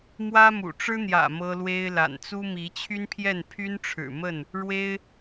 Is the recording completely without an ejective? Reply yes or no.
yes